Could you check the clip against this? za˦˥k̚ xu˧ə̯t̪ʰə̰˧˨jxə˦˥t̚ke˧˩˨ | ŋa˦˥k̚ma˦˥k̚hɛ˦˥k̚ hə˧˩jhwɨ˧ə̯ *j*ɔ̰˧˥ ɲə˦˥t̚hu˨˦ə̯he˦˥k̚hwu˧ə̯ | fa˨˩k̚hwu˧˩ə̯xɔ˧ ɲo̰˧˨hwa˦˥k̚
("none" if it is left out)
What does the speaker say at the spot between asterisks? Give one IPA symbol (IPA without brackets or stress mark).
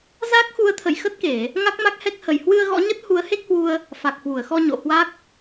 ɣ